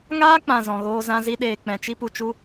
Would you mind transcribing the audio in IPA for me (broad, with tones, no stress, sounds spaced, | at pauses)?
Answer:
ŋ aː˦ k͡p ã˨ z ɔ̃˨ ɣ oː˧ z ã˧ z i˧ ɗ eː˨ k͡p ɛ̃˨ t͡ʃ i˦ p u˧ t͡ʃ u˦